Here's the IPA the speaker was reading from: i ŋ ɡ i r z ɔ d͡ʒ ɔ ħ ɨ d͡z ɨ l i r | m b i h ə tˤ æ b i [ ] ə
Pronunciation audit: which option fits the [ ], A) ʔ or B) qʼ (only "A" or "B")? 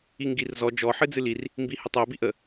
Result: A